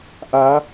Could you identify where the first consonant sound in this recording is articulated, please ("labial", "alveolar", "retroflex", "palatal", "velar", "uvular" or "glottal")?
glottal